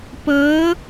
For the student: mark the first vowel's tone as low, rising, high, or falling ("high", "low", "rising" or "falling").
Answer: rising